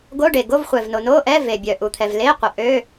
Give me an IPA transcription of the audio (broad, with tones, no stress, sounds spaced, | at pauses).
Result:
ɡ o˧˥˧ ɖ e˩ ɡ o˧˥˧ v χʷ ɛ˩ v n o˩ n o˧˥˧ ʔ ɛ˧˥˧ v e˩ bʲ œ˩ ʔ u˩ t̪ʰ ɛ˩ v l e˧˥˧ qʷ ə˩ ʔ ø˧˥˧